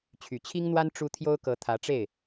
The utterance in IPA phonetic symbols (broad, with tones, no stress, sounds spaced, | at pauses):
t͡ɕʰ y˨˩ t͡ɕʰ i˥ ŋ n̪ w a˥ n ʈ͡ʂ u˥ t̪ʰ j o˥ ʊ̯ k ɤ˧˥ t̪ʰ ä˧˥ ʈ͡ʂ e˥˩ ɪ̯